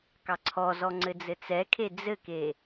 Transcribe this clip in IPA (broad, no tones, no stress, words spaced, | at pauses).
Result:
kɑǀʰɔzɔ ŋ͡ǀɘd͡zɘt͡sɛkʰe d͡zɘke